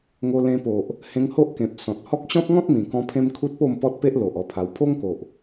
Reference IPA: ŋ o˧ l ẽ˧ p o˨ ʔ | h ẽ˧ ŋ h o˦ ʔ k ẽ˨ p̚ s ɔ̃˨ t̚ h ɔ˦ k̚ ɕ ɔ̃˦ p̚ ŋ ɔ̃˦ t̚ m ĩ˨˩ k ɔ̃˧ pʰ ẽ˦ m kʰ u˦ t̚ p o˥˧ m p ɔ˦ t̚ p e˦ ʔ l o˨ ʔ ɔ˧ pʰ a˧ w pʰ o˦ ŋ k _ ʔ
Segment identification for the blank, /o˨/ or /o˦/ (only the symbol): o˨